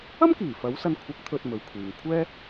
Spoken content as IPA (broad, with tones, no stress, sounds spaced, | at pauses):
ɐ˥ m k iː˨˩ f ɐ˨˥ w s ɐ˧ n kʷʰ ɐ˨˥ k̚ t̪ʰ ɵ˨ t̚ m ɵ˨ ɥ kʷʰ iː˨ ŋ kʷʰ ɛː˥